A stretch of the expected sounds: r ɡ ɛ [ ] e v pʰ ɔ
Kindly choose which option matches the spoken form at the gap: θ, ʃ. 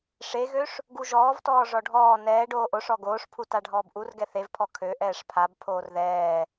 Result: θ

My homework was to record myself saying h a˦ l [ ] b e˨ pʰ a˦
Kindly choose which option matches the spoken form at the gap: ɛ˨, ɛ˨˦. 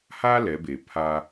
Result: ɛ˨˦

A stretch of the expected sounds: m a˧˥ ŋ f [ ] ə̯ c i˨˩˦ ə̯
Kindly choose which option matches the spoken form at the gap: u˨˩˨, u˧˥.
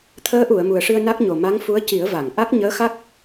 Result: u˧˥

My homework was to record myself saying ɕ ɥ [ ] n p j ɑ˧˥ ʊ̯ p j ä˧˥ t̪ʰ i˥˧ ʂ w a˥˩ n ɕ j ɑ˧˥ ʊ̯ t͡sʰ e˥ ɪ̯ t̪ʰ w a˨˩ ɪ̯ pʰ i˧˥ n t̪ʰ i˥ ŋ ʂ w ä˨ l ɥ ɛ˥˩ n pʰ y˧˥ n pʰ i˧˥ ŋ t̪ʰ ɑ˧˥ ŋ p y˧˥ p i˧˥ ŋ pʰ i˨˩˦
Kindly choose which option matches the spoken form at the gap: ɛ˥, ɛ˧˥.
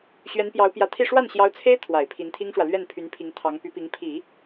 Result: ɛ˧˥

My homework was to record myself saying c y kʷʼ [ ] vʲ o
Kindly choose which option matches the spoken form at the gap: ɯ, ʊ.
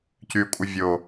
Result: ɯ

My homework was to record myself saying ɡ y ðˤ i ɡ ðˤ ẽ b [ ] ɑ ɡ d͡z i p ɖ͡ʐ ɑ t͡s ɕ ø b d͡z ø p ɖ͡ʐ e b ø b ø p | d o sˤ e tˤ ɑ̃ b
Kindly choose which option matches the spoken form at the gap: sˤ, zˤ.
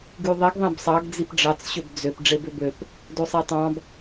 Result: sˤ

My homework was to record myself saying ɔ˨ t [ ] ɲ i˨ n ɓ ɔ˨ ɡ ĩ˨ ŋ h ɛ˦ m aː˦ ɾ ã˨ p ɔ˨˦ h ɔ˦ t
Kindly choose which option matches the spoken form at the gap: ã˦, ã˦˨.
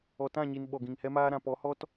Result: ã˦˨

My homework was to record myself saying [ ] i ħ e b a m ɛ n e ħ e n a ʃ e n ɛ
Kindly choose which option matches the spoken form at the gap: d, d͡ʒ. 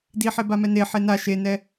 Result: d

